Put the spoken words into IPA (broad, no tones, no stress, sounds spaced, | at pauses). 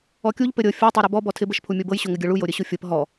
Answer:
ɔ kʲ u ʎ p ɘ ɾʲ ɤ fʲ ɤ tˤ ɤ ɾ œ b ɔ b ɔ tʰ ɪ b ɘ ʃ pʰ u mʲ o b ɤ j ɕ o ŋ ɘ ɡʲ ɤ ɭ u j o ɾʲ ɘ ɕ u fʲ ɤ p ɦ ɔ